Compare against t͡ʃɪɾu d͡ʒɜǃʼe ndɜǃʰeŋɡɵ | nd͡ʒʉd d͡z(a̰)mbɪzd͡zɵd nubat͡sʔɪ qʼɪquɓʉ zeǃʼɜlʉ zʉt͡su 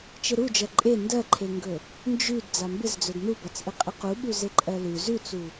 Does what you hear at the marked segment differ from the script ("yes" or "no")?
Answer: yes